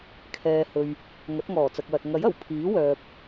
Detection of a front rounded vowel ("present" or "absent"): present